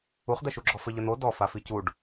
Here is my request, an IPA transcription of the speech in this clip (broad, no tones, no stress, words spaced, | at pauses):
uχd̪ɛʃuɡ͡ǁɔ fɘʎɘn̪o dɔ faficuɖ